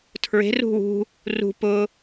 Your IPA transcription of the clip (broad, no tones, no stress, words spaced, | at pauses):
tʰɹe̤ rṳwṳ | rṳ pʊ